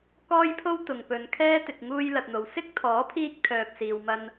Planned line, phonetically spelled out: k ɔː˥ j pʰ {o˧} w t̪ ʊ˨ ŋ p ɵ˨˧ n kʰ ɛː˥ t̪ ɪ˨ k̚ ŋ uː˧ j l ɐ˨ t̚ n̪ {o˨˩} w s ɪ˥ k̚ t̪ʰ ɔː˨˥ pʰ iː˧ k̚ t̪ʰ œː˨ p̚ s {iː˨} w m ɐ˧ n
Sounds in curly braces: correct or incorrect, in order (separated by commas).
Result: incorrect, incorrect, correct